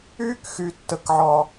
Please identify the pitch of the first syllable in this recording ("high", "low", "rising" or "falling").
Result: high